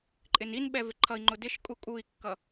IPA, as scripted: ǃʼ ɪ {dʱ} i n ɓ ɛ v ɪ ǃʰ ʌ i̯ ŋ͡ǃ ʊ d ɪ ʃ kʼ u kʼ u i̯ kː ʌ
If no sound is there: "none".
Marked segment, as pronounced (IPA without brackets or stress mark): n